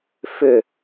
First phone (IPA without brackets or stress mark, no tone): f